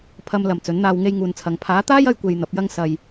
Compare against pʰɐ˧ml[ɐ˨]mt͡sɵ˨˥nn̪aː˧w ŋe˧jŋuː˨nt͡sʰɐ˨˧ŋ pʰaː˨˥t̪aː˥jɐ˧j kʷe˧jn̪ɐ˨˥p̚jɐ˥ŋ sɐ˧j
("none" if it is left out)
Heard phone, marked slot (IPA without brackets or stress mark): ɐ˨